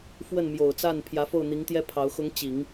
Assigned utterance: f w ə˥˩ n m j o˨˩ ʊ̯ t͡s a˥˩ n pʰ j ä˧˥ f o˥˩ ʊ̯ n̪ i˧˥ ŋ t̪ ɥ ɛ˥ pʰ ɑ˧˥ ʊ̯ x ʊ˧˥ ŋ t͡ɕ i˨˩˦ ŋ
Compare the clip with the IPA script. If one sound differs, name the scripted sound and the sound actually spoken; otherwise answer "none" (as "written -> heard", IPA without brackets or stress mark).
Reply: ɥ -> j